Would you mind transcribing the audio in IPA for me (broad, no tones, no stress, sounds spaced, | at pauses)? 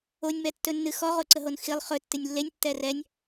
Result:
o nʲ m ɛ tː ɵ nː ɨ x ɔ ʁ o ǀ ə ɦ o n x i lˠ χ ɵ tː ɨ nʲ lː e nʲ tː ɛ r ɛ nʲ